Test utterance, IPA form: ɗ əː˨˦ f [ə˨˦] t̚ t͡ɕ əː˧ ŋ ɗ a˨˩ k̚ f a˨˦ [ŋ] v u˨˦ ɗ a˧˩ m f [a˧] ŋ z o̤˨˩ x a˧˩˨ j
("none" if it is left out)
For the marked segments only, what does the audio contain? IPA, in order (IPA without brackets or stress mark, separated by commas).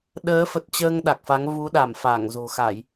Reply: ə˨˩, ŋ, a˧˩